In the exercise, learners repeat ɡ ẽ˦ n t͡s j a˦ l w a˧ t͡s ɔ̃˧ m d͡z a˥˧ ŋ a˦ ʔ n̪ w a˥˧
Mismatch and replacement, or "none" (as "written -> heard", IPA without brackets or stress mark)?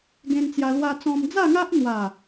none